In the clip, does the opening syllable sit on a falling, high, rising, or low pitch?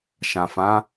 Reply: low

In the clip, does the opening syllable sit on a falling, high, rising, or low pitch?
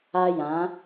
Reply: high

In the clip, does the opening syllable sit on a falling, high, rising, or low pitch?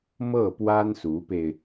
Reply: falling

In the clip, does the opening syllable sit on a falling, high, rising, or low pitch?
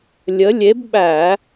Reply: rising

